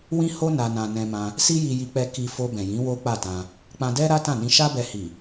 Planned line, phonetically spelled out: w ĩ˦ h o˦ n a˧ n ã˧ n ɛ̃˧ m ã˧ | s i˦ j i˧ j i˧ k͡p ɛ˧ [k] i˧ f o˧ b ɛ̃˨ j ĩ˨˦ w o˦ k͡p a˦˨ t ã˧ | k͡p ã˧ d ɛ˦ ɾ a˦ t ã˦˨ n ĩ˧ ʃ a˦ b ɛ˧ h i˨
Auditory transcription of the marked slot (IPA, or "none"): k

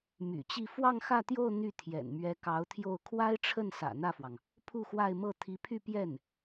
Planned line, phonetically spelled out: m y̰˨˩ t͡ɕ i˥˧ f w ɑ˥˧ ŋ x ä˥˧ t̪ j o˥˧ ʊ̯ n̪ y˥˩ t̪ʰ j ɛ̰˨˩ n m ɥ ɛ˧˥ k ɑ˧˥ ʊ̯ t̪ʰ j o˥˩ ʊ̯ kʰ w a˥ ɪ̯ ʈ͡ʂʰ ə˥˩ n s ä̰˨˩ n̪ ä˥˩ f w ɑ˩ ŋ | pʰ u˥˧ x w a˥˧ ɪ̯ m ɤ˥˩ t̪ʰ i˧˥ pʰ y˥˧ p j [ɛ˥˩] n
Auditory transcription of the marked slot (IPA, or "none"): ɛ˥˩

